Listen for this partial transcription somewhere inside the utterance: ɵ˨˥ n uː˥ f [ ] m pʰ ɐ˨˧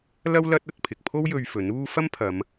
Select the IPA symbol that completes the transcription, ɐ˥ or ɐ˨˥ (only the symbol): ɐ˥